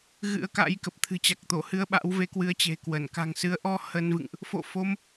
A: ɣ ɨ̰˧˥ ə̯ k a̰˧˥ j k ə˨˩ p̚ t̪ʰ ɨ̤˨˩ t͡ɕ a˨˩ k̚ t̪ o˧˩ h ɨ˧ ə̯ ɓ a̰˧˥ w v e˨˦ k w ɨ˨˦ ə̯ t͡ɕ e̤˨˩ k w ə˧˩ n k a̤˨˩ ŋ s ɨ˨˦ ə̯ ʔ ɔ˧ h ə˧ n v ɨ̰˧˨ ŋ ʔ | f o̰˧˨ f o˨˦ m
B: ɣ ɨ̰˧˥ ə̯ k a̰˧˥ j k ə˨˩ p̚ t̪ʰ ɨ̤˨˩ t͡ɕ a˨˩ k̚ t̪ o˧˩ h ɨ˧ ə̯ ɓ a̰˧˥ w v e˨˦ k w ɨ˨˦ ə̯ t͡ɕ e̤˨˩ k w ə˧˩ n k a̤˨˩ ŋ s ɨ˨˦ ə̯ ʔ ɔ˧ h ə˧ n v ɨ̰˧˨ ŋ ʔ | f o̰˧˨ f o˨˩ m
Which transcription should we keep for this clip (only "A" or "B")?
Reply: A